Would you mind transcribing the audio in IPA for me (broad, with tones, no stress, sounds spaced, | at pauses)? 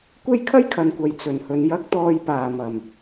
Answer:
kʷ e˥ j kʰ ɐ˥ j kʰ ɐ˨ n kʷ ɐ˨ j t͡s ɵ˨˩ n h ɵ˨ n j ɐ˨˥ k̚ t̪ ɔː˨ j p aː˨˩ m ɐ˨˩ m